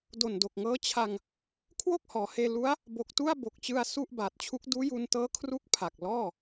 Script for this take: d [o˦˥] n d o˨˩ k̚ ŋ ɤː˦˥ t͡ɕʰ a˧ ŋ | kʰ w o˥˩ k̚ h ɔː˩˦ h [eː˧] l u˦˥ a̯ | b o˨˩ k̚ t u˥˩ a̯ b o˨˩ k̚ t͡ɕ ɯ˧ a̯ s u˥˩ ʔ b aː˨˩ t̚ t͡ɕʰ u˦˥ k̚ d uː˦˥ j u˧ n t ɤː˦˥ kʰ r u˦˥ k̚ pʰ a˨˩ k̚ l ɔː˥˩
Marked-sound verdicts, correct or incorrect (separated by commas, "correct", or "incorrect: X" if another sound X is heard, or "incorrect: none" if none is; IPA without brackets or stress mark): incorrect: o˨˩, correct